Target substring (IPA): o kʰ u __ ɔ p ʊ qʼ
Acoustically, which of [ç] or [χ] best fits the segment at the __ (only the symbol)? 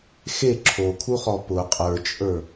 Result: χ